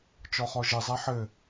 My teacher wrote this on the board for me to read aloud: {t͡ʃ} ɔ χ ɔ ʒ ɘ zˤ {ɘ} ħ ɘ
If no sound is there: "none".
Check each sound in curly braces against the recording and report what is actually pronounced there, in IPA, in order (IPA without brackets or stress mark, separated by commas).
t͡ʃ, ɛ